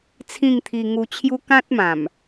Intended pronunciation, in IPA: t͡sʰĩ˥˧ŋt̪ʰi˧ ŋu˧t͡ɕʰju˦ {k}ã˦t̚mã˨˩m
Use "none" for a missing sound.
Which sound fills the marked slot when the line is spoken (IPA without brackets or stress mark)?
k